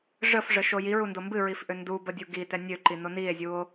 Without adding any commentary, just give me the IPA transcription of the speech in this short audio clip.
ʐəfʐəʃo jiɹundo mbɨɹifʔø ndubədʲu ɡitɛ nʲøǃino nie̯zʲuo̯

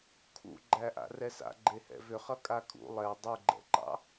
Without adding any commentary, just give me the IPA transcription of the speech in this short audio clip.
kʰṵɡ͡ǃæʔa̰ rɛsa̰ɡ͡ǃe hɛ̰vʏχʌ kʼakʼṵ lˠɛ dˤuɡ͡ǃɛ̰ǃɑ̰

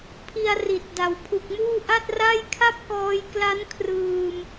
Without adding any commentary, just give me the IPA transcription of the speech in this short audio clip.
pʰi˧a̯ri˨˩t̚ da˨˩wpʰu˨˩k̚muː˥˩ ʔa˥˩t̚ra˥˩j kʰa˥˩p̚kɔː˧jkla˦˥n kʰrɯː˧m

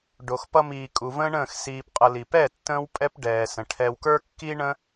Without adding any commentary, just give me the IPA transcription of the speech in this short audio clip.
ɖo˨xpʌ˧miː˨ kʼu˨ və̃ː˦ɳə̃ː˦˨x siː˨pqʼʌ˨ li˨pɛ˦˨ tːə̃ː˦wpʼɛ˦p ɖɛː˨sə̃˨ ʈʰɛ˧wkə˞˦kːi˦ɳə̃˦

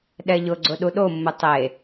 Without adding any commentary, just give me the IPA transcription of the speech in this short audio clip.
ɗɛʎʊɡ͡ǀʊ ɗuɗomːʊ tˤe

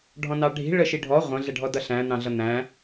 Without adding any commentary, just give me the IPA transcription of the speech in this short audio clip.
ɖʱɔ̃nɑɖʱi̤ ɭəʃiɖʱɔ ʁʷə̃ ɮɛɖʱɔdʌɬæ̃ n̪ɑ̃ɮʌn̪æ̃

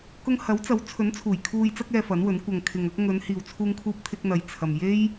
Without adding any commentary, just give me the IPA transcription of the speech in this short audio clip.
kʊ˧ŋhɐ˨˥w t͡sɐ˨˥wt͡sʰɵ˨˥nt͡sʰuː˨˩j kʰuː˨jt͡sɐ˧k̚ɛː˨ fɐ˨˥nwɵ˨˥n kʷɐ˨ŋkʰɪ˨ŋ ɐ˧k̚ŋɵ˨˧n hiː˨wt͡sʰuː˧ŋkʰuː˧p̚t̪ʰɪ˧k̚ n̪ɐ˨jt͡sʰɐ˨m je˥j

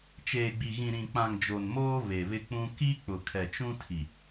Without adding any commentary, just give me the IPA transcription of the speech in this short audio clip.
t͡ʃeː˨ɡ͡bi˨ ɣĩ˨ɾĩ˨k͡pã˨ŋ d͡ʒo˨nmoː˦ βe˨βɪ˦k͡pũ˦ ki˦ k͡pʊ˨kʰɛ˨t͡ʃũ˦ tʰi˨

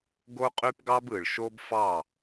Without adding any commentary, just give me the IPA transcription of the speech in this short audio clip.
ɡo˦qʼy˦pɡɑ˦bɯ˨ɭ ʃo˦bfɑ˦˨

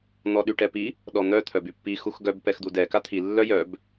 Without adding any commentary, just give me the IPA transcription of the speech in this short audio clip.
n̪ɔɗyʈɛpi | ɗɔn̪œ t̪ʰœbypːi xuxɡœb pɛxd̪udɛ kat̪ʰi lːœjœb

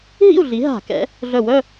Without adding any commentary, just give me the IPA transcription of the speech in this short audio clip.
ɦḭ˥˧u̯ɮi˨˦ ɦa̤˧˩˧kɛ̰˨˦ | ɮœ˧˩wœ˥˧

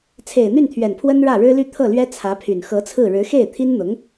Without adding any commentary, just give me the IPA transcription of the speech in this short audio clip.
t͡sʰe˨˩ɪ̯n̪y˥˩nt̪ʰɥɛ˨˩n pʰwə˥nɻä˥˩ɻɻ̩˥ly˥˧ t̪ʰɤ˥˩lɥɛ˥t͡sʰä˧˥pʰy˨˩n xɤ˧˥t͡sʰɹ̩˥˩ ɻɻ̩˧˥xe˥˩ɪ̯t̪ʰi˥nn̪ʊ˧˥ŋ

